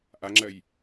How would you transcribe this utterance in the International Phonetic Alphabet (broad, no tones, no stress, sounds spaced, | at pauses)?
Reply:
ʔ a ŋ͡ǁ ɜ j